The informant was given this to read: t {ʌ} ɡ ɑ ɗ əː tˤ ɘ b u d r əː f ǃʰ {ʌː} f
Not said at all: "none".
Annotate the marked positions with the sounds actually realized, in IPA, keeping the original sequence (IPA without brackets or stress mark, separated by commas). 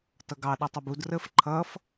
ʌ, ʌː